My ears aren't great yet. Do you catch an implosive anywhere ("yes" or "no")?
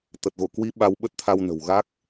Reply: yes